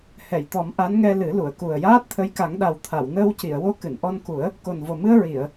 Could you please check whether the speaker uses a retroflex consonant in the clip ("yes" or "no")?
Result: no